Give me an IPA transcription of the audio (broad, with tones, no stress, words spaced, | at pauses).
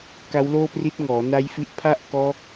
ka˦˥wloː˥˩pri˦˥t̚ ŋɔː˩˦na˦˥jfi˦˥ʔ pʰa˥˩ʔkɔː˦˥k̚